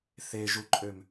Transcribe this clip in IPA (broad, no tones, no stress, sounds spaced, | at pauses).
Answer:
θ e ʒ u ǃʼ ø m